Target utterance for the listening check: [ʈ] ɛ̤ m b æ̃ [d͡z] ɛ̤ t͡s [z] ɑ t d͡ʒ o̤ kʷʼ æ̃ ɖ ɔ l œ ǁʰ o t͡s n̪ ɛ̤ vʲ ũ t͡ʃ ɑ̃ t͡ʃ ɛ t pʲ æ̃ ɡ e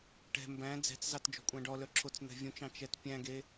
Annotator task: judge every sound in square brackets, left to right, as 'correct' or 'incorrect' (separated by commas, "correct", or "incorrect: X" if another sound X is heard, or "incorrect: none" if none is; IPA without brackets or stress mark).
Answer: correct, correct, correct